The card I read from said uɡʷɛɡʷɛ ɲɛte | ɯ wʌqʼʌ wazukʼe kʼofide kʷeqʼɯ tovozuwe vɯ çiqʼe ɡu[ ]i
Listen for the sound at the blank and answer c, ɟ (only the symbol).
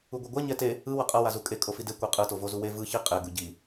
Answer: ɟ